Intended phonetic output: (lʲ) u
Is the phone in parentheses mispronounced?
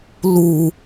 yes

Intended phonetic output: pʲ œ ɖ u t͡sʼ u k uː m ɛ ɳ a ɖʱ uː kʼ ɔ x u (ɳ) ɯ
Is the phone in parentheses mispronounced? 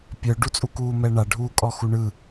no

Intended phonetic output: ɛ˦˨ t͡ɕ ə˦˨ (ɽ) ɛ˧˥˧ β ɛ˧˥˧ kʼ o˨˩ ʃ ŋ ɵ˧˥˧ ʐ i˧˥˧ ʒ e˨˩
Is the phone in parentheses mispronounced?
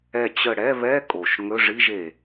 no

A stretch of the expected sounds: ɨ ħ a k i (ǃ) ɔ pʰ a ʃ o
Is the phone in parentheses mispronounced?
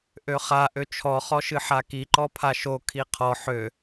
no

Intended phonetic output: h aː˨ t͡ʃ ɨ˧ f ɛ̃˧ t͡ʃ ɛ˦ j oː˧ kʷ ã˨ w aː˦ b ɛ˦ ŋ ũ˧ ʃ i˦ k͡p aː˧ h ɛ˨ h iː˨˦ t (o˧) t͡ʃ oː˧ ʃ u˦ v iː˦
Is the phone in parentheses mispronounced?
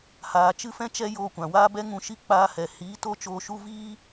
no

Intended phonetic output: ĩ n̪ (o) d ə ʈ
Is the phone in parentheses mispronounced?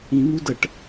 yes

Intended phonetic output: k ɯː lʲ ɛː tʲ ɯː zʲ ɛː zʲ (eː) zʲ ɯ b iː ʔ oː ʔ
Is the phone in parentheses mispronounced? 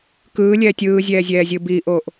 yes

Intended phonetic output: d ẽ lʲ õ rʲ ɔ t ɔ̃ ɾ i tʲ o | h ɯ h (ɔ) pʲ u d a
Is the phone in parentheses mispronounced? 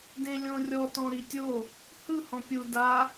yes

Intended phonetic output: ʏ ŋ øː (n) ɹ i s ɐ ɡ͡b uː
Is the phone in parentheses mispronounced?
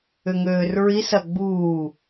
yes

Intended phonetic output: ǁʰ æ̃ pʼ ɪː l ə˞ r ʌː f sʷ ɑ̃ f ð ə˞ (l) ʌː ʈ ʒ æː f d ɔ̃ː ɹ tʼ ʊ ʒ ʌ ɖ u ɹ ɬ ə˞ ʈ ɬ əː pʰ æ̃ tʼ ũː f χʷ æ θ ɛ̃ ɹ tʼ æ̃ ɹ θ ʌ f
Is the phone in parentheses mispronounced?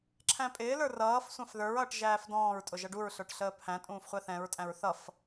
yes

